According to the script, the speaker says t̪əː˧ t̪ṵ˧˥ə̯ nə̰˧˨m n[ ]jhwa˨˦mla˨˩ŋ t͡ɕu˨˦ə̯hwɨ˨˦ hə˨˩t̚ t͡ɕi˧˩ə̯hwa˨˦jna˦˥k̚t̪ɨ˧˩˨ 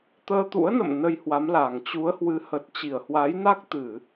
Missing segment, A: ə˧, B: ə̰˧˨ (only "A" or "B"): A